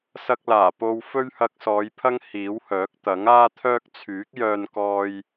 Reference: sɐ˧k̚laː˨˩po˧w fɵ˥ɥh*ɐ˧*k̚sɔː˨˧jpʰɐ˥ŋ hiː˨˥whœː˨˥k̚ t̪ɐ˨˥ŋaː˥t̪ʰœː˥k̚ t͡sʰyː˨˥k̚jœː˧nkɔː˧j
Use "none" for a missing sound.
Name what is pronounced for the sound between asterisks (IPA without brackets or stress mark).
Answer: ɐ˧